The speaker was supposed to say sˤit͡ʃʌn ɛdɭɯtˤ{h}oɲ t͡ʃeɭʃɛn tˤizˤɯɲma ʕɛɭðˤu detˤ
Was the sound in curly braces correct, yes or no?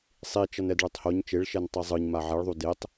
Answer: yes